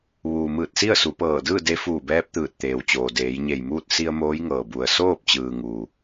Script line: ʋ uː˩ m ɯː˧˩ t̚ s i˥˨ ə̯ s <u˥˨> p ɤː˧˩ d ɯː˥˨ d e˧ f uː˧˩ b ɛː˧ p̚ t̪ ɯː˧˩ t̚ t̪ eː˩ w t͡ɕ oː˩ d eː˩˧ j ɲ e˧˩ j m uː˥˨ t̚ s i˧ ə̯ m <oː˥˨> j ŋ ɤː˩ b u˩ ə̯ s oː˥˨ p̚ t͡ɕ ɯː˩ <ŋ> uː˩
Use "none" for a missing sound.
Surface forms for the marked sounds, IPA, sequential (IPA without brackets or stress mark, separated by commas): u˩˧, oː˧˥, ŋ